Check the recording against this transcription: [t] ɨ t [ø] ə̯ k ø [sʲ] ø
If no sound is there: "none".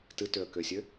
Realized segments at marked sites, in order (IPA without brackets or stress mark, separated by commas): t, ø, sʲ